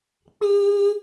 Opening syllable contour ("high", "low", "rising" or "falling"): high